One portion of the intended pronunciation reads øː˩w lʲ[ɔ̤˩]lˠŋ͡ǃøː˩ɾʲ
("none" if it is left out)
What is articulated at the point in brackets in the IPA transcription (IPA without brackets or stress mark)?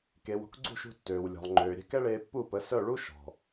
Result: ɔ̤˩